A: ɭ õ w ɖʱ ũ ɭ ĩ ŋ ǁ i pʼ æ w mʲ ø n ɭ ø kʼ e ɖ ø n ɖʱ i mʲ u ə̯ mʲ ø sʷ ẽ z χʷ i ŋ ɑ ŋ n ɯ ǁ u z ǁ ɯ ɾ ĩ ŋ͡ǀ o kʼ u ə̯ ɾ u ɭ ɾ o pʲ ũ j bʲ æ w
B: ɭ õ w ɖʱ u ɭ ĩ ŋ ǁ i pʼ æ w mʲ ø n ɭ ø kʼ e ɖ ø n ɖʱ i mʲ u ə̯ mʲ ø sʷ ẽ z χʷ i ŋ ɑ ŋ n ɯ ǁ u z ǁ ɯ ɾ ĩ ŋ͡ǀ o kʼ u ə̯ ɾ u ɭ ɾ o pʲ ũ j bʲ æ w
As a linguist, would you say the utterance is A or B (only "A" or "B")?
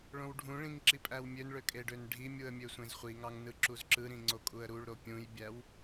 A